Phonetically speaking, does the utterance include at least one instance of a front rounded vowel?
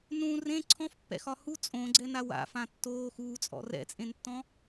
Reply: no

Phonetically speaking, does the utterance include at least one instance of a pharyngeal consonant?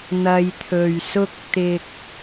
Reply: no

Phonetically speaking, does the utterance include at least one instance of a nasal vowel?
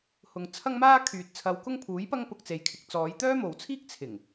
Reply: no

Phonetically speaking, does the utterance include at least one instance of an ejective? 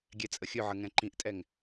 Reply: yes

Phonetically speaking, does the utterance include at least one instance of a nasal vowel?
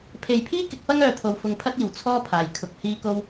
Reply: no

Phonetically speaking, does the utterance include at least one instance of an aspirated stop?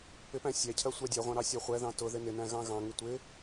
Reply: yes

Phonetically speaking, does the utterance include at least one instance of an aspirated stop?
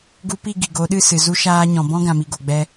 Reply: no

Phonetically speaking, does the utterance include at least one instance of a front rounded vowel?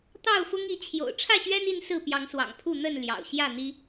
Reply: no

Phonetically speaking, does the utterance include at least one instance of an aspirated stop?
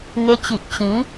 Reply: no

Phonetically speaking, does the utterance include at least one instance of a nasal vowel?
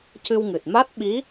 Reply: no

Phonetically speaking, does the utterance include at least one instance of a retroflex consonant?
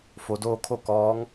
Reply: no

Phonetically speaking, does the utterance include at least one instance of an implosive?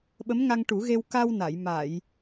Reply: yes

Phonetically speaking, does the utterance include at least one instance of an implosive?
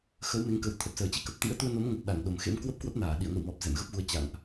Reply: yes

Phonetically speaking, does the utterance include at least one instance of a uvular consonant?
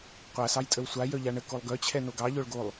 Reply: yes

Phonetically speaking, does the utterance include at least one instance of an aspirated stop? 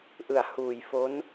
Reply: no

